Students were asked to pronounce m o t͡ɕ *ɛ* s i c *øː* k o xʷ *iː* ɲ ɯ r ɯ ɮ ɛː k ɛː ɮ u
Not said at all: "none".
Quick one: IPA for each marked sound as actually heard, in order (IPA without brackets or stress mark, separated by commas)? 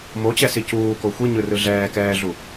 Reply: ɛ, uː, i